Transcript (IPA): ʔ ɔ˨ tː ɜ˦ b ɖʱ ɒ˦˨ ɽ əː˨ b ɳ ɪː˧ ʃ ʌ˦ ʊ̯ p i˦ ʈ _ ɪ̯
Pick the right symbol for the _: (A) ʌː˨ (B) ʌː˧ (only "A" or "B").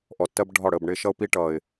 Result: A